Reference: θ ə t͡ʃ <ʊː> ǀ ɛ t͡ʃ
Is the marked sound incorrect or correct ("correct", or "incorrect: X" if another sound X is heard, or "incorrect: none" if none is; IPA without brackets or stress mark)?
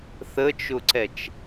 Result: incorrect: ʊ